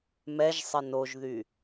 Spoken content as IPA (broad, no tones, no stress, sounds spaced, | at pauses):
m ɛ ʒ sˤ ɪ n o ʒ ð y